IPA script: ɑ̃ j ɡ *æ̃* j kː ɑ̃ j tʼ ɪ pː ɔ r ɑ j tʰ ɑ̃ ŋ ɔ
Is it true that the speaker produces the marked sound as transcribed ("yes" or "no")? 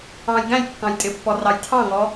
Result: yes